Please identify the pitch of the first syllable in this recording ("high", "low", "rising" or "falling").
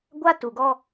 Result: high